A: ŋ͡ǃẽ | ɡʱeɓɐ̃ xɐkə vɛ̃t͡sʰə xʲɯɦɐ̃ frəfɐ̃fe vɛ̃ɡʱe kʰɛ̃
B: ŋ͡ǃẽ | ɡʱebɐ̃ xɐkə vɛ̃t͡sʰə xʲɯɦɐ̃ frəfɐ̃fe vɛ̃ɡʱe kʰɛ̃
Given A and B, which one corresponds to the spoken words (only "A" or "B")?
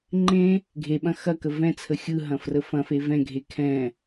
A